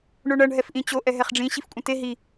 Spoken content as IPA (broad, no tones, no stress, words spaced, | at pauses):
ɳoɳʌɳ ɦɛfʔĩt͡ɕo ʔɛɦɛχɖ͡ʐĩ ɕifkʷʼɛ̃te ɦi